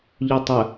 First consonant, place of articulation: palatal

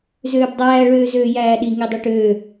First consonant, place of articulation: alveolar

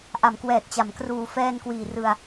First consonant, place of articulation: glottal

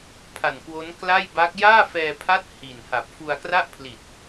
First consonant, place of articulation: labial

